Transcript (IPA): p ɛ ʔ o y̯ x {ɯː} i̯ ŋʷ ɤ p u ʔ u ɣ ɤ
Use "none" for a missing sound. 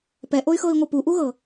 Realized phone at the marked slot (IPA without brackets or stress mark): ɤː